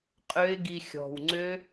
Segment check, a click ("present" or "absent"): present